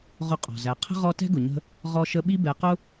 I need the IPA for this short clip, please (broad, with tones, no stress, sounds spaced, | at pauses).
ʁ ʊ˦ qʼ ɔ̤˩ z æ˨ qʰ ə̤˥ ʁ ɔ˦ t ɛ̤˥ ɡ ʊ˩ ɲ ə̤˦ | ʁ ɔ˦ ʃ ə˦ ɓ i˦ b ɛ˨ q ʊ˦